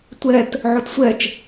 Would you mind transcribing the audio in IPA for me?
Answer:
tʷ ɛ t | ʕ o t sʷ ɛ t͡ʃ

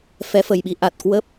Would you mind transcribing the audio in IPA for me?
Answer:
f ɛ˨˦ f ə˨˩ j ɓ i˧ ʔ a˨˩ t̚ k w ə˦˥ p̚

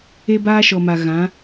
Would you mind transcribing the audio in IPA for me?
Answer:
e˦ b aː˦ ʃ ɔ˨ m a˨ ɣ ã˨˦

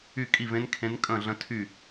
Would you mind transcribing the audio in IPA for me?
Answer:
y˥˧ kʼ i˥˧ v ẽ˦˥ n kʰ ẽ˦˥ n kʼ ə̃˥˧ ɮ ə̃˦˥ tʰ y˥˧

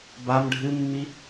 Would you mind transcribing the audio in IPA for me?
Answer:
b a m ɖʱ ɨ mː i

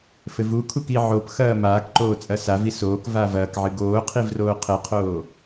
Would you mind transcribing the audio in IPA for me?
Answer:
f ɘ v u kʰ u k i ʕ o p x ɐː m aː k ǃ oː t͡sʼ ɐ s a v i s oː k v aː v ɐː k ʕ ɨ ɡ oː qʰ i v r oː qʰ ɘ qʰ oː

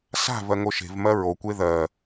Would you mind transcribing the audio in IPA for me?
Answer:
s a̤ v ɜ ŋ o ʃ e̤ v m ɜ ɹ o kʷ e ð ɜ

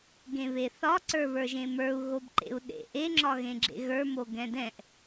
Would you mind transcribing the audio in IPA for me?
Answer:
ɡ ẽ β e θ ɒ ǀ ə˞ β ə˞ ʒ ẽ m ə˞ u̯ ɣ o b ǃ ḛ u̯ ɗ ḛ ʔ e ŋ͡ǁ ɒ ɣ ẽ ɡ͡ǁ ḛ ɣ ə˞ m o ɡ ɛ̃ d ɛ̃ ʔ

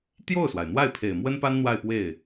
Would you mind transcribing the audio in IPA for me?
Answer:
t̪ j o˥˩ ʊ̯ s w a˩ ɪ̯ n̪ w a˥˩ ɪ̯ pʰ e˨˩ ɪ̯ m w ə˥ n p a˥ n n̪ w a˥˧ ɪ̯ p w e˥˩ ɪ̯

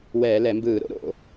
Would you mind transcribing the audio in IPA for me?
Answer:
w ɛː˧˩˧ l ɛ˧˩˧ m b ɯː˧˩˧ ɾ o̰˨˥ ɾ o̰˧˩˧

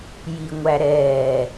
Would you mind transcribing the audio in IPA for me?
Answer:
j i ŋʷ æ ɾ ɛː

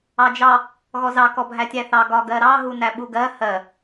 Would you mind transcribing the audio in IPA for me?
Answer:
ɑ d͡ʒ ɑ | ɣ ɔ z ɑ k ɔ bʱ æ tʲ æ θ ɑ ɡ ɒ ɡ ɜ ɾ ɑ ɦ u n æ ɓ u ɡ ɜ h ɜ

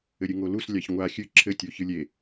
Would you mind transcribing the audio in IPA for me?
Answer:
ɘ ɾʲ ɨ ŋ o l u s lʲ a ç ŋʷ a xʲ ɨ ǁʰ ɘ tʲ o ç ɨ lʲ e

